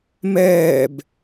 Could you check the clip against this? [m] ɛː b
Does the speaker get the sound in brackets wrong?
no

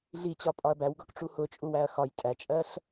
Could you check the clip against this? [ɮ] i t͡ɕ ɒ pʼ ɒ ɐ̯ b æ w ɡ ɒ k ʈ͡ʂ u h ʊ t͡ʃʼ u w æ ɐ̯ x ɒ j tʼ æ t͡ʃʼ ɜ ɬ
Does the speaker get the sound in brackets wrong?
no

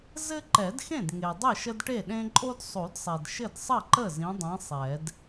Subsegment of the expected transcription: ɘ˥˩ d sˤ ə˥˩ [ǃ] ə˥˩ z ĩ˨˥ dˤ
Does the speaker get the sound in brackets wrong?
no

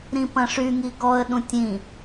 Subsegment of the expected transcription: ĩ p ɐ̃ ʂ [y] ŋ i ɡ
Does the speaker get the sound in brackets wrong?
no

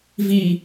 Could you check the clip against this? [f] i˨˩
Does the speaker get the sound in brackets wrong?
yes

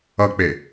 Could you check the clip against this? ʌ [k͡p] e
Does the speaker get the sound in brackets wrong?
no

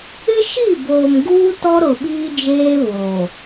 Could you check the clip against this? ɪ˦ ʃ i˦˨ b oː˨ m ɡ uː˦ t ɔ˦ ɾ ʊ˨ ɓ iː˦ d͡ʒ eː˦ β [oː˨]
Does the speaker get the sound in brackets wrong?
no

